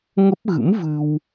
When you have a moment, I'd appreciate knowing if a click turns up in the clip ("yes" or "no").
no